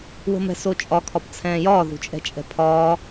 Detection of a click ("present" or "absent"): absent